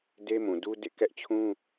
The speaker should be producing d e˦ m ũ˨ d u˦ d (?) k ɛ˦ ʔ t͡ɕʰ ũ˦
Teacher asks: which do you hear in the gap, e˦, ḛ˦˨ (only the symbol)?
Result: ḛ˦˨